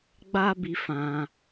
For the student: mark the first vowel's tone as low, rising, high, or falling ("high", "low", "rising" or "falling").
high